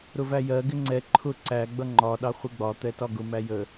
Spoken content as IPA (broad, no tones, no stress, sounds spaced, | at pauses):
ɾ ʊ v æ j ɜ ɡ ɪ ŋ͡ǀ ɛ ǃʰ ʊ ǀ æ ɡ͡b ʌ ŋ͡ǃ ɒ ɗ ɑ χʷ ɪ ɡ͡b ɒ t̪ ɛ t ɒ ɡ ʊ m æ j ə